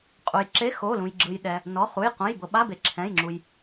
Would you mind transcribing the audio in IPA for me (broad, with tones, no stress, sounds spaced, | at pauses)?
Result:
qʼ u˩ j ǁ e˧˥˧ x o˩˧˩ l ũ˩ j ɡ͡ǁ ɯ˩ j ɗ ɛ˩ | n ɔ˩˧˩ χ u˩˧˩ j q õ˩˧˩ j b ɤ˩ ɓ a˧˥˧ b e˩ ǁʰ ɛ̃˩˧˩ j ŋ͡ǁ u˩ j